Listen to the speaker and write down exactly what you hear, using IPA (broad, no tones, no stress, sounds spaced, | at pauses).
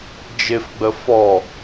d͡ʒ ɪ f ɡ͡b ə f ɔ